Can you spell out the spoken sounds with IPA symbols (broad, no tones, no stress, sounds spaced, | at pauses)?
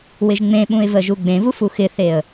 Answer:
w ɪ ʒ ŋ͡m ẽ ɓ ũ ɪ̯ v ə ʒ u ɡ͡b ẽ v u f u x ɪ θ e ə̯